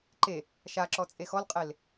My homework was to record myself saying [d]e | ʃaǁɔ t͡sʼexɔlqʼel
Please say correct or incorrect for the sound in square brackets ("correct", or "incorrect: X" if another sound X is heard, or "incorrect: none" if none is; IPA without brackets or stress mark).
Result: incorrect: ǃ